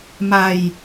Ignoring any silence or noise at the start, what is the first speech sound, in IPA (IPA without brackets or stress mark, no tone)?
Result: m